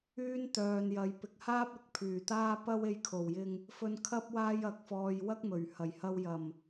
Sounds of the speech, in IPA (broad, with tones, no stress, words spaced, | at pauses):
yː˥nt̪œː˨njɐ˨˧j pɪ˨k̚haː˥p̚ ɪ˨˥k̚pʰyː˨˩t̪aː˥ pɐ˥we˧jkʰo˨˩wjɪ˧ŋ | fɵ˧nkʰɐ˥p̚ waː˥jɐ˧k̚fɔː˧j wɐ˥k̚mɵ˨˩ɥhɐ˨˩jhɐ˧w jɐ˨˩m